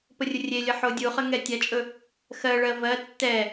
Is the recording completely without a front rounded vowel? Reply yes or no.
yes